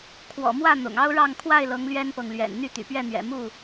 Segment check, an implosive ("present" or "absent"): absent